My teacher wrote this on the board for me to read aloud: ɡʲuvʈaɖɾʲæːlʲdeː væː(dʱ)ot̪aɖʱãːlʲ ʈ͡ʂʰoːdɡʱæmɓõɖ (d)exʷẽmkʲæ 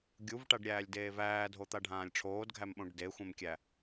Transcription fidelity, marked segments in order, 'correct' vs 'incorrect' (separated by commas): correct, correct